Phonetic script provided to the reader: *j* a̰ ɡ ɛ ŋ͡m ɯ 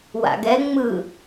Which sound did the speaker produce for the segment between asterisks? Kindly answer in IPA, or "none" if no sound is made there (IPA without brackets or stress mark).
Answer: w